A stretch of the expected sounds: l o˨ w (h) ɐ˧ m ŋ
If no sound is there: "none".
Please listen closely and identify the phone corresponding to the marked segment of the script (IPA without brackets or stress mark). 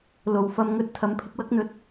f